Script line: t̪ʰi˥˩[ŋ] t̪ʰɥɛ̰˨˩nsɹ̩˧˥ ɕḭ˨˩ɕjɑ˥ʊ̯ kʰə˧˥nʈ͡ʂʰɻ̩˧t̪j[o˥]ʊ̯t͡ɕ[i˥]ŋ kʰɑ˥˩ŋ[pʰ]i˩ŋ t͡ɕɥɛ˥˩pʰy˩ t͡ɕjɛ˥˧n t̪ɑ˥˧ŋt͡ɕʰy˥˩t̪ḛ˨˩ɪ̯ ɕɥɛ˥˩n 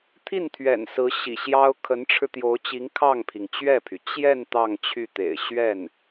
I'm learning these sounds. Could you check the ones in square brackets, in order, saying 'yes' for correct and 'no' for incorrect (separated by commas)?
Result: no, no, no, yes